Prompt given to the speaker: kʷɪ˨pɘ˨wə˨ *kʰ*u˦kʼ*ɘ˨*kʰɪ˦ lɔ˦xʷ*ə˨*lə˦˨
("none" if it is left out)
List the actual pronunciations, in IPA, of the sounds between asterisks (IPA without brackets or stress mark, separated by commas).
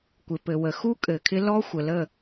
x, ɘ˨, ə˨